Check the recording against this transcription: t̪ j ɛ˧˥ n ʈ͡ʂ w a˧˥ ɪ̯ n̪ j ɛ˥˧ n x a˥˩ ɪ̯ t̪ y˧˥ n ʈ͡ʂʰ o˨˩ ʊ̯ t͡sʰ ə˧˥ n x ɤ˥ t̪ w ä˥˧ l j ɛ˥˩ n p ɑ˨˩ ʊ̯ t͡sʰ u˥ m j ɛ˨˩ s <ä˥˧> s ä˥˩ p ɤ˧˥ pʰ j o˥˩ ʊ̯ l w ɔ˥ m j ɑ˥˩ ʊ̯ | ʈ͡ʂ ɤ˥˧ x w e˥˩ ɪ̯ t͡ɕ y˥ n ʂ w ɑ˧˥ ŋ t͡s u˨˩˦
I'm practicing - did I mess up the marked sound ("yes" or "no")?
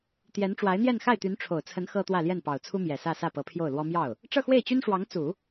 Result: no